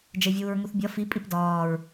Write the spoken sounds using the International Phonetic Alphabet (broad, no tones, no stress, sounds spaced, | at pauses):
d͡ʒ e vʲ uː ɹ ŋ u θ bʲ ɒ f i pʼ i p d ɒː ɹ